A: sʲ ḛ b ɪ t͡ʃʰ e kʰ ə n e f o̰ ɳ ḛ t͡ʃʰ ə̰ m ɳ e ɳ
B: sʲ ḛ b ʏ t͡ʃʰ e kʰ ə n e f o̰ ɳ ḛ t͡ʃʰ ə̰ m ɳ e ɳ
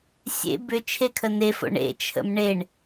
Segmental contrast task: B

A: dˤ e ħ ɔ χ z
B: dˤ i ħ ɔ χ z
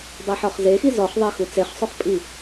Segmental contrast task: B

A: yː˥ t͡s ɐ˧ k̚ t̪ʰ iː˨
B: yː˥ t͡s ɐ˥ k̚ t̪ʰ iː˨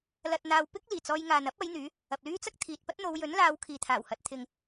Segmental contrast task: B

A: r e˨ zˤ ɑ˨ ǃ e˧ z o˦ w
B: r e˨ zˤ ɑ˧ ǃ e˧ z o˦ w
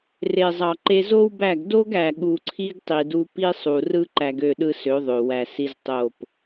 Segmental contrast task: A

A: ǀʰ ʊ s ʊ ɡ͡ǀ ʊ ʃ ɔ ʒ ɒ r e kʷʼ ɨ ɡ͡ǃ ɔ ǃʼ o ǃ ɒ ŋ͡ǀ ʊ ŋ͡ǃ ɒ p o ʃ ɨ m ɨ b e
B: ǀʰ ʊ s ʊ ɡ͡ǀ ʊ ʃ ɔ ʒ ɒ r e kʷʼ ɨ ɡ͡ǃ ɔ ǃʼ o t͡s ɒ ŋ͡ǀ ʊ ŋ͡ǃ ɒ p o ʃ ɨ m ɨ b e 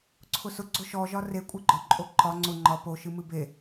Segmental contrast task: A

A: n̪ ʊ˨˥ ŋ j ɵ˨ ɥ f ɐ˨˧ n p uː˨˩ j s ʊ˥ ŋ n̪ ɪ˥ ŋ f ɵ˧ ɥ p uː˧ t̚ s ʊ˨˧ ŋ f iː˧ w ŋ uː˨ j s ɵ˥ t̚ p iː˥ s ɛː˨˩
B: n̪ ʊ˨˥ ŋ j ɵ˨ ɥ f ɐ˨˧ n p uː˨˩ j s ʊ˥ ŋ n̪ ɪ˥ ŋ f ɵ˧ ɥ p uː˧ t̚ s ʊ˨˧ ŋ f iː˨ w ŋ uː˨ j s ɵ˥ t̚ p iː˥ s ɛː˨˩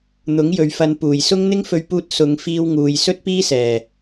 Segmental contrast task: A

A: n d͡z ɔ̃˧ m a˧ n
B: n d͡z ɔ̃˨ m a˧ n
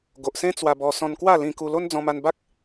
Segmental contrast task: A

